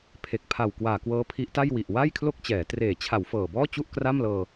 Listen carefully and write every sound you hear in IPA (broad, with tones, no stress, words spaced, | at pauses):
pʰe˨˩k̚pʰa˨˩w kwaː˨˩kwɤː˦˥ pʰi˦˥ʔta˥˩j wi˨˩ʔ wa˥˩jkʰlo˥˩k̚t͡ɕɛː˩˦ treː˩˦t͡ɕʰa˩˦w fɤː˨˩bɔː˥˩ t͡ɕu˥˩ʔkra˥˩mlɤː˧